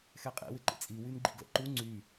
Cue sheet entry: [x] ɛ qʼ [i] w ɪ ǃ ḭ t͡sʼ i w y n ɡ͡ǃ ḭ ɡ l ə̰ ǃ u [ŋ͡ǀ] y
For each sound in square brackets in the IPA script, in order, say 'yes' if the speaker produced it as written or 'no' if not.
yes, no, yes

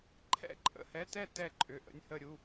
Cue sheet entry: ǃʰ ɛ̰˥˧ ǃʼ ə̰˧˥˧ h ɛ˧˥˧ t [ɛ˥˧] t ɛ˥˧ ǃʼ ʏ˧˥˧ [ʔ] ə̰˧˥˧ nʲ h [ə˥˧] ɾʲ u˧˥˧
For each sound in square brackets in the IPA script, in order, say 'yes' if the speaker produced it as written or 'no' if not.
yes, yes, yes

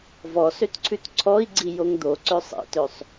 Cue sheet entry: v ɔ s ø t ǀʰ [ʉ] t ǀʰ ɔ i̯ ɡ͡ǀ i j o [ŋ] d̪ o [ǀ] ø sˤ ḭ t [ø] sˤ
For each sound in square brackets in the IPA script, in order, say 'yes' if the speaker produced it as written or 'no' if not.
yes, yes, yes, yes

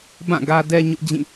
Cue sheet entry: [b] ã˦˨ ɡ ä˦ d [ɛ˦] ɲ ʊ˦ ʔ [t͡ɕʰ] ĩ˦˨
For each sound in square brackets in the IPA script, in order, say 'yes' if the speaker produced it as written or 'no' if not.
yes, yes, no

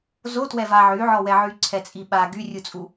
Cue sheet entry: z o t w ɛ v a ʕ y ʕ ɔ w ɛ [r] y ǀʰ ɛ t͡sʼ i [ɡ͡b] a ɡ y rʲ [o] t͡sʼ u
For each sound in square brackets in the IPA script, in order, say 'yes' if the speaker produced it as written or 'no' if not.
no, no, no

